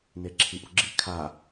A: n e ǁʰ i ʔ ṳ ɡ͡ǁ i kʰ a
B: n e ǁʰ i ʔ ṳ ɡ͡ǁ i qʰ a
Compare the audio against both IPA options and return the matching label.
A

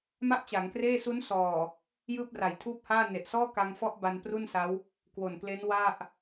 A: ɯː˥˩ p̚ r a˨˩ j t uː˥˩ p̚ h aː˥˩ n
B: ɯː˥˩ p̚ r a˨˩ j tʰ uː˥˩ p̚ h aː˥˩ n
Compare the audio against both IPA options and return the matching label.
B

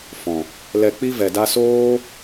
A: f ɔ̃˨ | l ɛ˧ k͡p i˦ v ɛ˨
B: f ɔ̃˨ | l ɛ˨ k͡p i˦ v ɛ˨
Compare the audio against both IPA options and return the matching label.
A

